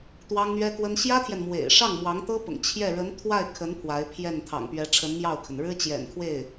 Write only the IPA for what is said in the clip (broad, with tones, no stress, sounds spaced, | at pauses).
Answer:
t̪ w ɑ˥ ŋ n̪ ɥ ɛ˥ k w ə˥ n ɕ j ä˥ t̪ʰ j ɛ˨ n m w ḛ˨˩ ɪ̯ ʂ ɑ˥˩ ŋ m w ɑ˧˥ ŋ t̪ ɤ˥ p ʊ̰˨˩ ŋ t͡ɕʰ j ɛ˥˩ ɻ ə˧˥ n t̪ʰ w a˥˩ ɪ̯ kʰ ə˧˥ n pʰ w a˧˥ ɪ̯ pʰ j ɛ˥˩ n t̪ʰ ɑ̰˨˩ ŋ p ɥ ɛ˧˥ ʈ͡ʂʰ ə˧˥ n m j ɑ˥˩ ʊ̯ kʰ ə˩ n ɻ ɻ̩˥ t͡ɕ j ɛ̰˨˩ n kʰ w e˥˩ ɪ̯